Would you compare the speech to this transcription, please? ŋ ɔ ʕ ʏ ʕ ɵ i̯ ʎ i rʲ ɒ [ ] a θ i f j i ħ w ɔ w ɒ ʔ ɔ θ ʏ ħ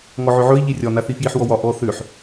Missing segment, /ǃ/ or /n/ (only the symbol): n